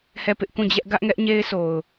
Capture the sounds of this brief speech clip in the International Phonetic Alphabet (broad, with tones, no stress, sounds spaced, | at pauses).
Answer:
h ɛ˦˨ p ɪ˦ ʔ k ũ˦˨ d͡ʑ ɛ˦ ʔ ɡ ä˦ ʔ ŋ ɛ˦ ʔ ɲ e˦ ɪ̯ s o˨ ʊ̯